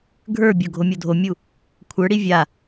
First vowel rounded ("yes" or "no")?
no